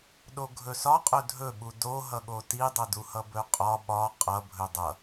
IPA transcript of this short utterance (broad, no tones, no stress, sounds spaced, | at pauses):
ɗ o ɡʱ ɵ s ɒ qʼ ɵ dʱ ɵ ɓ u d o ɦ ʌ ɠ o t i dˤ ʌ d u h ʌ b ɵ qʼ ɒ ɓ ɒ qʼ ʌ bʱ ɵ dˤ ʌ